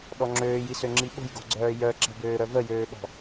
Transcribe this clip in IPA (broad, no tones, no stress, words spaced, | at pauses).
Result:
ɗɔŋ͡ǁøːjisø ŋ͡ǁiɓo̤jɡo̤ɡ͡ǀœː jœǁɛ̤bøː ɾœvəjøːɓɔ̤